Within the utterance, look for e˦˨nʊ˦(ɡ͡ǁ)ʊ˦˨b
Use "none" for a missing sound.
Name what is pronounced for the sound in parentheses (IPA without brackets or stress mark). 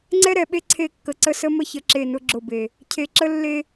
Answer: ɡ͡ǁ